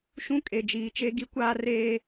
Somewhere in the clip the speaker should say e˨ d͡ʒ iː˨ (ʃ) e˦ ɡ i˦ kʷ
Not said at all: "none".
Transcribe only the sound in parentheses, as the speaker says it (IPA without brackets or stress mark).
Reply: t͡ʃ